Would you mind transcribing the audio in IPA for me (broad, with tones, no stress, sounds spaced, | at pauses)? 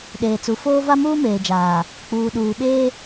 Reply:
ɗ eː˨ t͡s u˨ f oː˦ v a˦ m uː˦ m eː˨ d͡ʒ aː˨ | k͡p uː˨ ɗ uː˨ ɓ eː˦